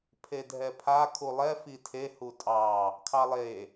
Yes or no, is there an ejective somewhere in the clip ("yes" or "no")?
yes